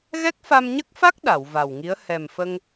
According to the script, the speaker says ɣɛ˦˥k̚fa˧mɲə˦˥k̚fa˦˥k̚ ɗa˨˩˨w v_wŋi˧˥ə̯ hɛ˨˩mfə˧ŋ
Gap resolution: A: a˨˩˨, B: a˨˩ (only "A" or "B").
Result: B